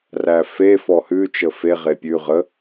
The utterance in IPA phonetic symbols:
ræfe fɔhʉ t͡ʃəfe ʁepʲʉ ʁə

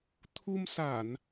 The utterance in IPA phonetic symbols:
t̪ʰu˧msa˧˩˨n

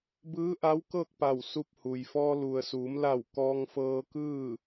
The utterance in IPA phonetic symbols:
bɯː˧˥ʔa˧˥wkɤː˥˨k̚ pa˧˩w su˧p̚huː˩jfɔː˧ lu˩ə̯suː˩˧m la˧˩w kɔː˧ŋfɤː˧kɯː˥˨

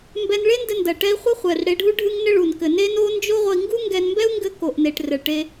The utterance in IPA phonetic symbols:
mbɛ˧nɭe˥ndɘ˧ ndɐ˩ʈɛ˧i̯ χʷɘ˥χʷɛ˩r ɽe˧ɖʱu˥ ɖʱɨ˥ŋnɘ˥ɭu˩n kɘ˩ne˥no˥ nd͡ʒo˥ ʁʷɐ˧i̯ŋɡu˥ŋɡɛ˧nmbɛ˥u̯ ŋɡɘ˧ ko˩ʔne˩ʈ rɘ˩ɭʈe˧

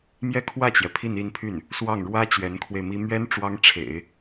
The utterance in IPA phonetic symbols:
mjɛ˥˧kʰwä˥˩t͡ɕjɛ˩ pʰi˥˧ni˥˧npʰy˥˩n | swɑ˥˩ŋ ɻwä˥ t͡ɕɥɛ˧˥nkʰwe˧ɪ̯mi˥ mɥɛ˥n ʈ͡ʂwɑ˥ŋʈ͡ʂʰḛ˨˩˦ɪ̯

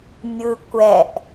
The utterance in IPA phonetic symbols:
mʲɯ kʷɛʔ

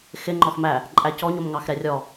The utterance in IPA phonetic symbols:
xɪ ŋ͡ǃɔxmæ | ǃʼæcɔɲom ŋɑxɾɛrʲɔ

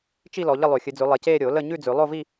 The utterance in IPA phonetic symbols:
t͡ʃi˥˧ lɔ˨˦ʎə˥˧lˠʉ˨˩˦ xʲɨ˨˦d͡zʉ˨˦ lˠe˨˦ceː˥˧ ɾʲo˨˩˦ lə˥˧ ɲʉ˥˧d͡zʉ˨˩˦lˠo˥˧vi˥˧

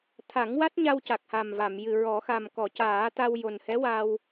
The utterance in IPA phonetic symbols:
t̪ʰa˨˩˦ŋwa˦˥t̚ɲa˧w ca˨˩k̚ha˨˩mva˨˩˨mjɨ˨˩ ɹɔ˨˩˦ xa˨˩mkɔ˨˩˨caː˨˩˦ t̪a˧wjo˨˩n hɛ˧˥wa˧w

